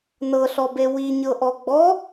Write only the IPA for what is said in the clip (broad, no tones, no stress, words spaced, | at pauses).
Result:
nɤɬɔbe wiɲɤʔɔ ɡ͡bɔ